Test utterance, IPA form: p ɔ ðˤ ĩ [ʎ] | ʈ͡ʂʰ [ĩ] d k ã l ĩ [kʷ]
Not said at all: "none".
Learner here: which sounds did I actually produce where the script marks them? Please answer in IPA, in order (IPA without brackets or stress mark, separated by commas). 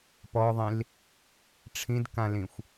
l, ĩ, xʷ